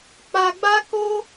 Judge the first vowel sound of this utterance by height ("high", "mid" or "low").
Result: low